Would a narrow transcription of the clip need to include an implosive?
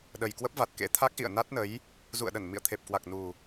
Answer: yes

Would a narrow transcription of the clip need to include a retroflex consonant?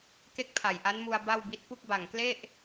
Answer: no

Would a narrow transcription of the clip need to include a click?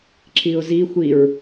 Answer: yes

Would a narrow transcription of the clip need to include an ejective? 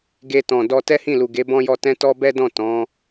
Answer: no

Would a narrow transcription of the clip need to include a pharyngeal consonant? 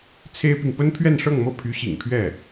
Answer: no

